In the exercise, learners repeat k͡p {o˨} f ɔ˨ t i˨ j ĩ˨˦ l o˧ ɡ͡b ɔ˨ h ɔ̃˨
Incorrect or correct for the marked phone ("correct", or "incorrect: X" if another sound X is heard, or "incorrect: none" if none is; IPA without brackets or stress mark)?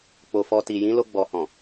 correct